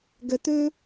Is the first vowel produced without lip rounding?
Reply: yes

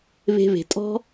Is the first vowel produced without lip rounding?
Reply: yes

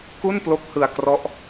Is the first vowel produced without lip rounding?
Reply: no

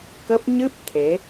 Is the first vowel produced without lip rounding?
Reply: yes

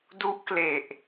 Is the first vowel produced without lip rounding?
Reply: no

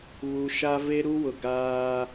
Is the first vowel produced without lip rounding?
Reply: no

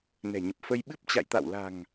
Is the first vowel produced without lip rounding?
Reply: yes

